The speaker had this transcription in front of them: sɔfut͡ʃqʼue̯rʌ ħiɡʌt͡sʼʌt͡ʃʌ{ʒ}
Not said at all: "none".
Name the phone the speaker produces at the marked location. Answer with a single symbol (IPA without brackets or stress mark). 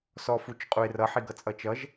ʒ